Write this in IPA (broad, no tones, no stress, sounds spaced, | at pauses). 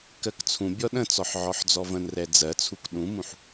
k ɜ k t͡sʰ ũ bʲ ɔ ɗ ə̃ t͡s ɔ ħ ʕ ɔ ħ d͡z ɔ v ə̃ n r ɛ d͡z ɜ t͡sʰ u k ɗ ũ m ũ ħ